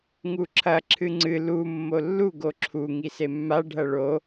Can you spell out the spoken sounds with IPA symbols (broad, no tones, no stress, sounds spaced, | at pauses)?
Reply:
ŋ u ǁʰ ɐ ǁʰ ɨ ŋ͡ǀ ɨ l u mː o lː u ɡ o ǁʰ u ŋ i s e mː a ɖʱ ɐ ɭ o